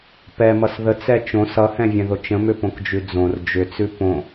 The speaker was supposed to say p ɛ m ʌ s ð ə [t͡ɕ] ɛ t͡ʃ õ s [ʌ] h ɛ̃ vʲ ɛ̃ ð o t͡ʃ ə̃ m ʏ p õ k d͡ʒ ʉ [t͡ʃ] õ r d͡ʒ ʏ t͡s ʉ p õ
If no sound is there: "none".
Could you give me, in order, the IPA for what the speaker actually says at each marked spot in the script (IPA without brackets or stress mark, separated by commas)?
t͡s, ʌ, d͡z